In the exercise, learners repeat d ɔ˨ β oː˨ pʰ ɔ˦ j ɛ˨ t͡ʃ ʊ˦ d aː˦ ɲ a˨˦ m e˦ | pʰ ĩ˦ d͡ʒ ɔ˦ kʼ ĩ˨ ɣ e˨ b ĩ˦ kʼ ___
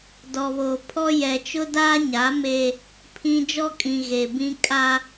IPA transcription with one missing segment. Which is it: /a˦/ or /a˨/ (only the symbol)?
a˦